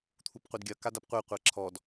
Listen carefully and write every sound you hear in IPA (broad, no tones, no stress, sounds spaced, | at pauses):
t̪ʰ u p qʷ ɛ d ɡʲ ɐ k a d a p qʷ ɛ qʷ a ǁʰ ɔ d